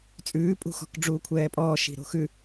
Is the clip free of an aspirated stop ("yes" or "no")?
no